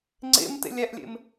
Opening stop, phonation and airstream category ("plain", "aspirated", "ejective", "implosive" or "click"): click